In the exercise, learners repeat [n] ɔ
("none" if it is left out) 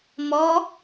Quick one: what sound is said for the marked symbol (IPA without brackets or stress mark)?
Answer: m